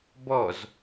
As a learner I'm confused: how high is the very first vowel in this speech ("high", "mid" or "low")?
mid